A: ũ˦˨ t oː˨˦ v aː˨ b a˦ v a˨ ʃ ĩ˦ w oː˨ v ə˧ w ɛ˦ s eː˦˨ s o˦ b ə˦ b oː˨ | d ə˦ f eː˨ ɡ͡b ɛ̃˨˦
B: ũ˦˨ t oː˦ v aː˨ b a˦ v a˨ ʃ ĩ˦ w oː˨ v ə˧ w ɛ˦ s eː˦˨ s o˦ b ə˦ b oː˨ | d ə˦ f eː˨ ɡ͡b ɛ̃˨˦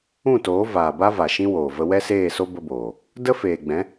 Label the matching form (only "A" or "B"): A